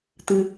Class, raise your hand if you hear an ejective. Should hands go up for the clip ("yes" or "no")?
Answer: no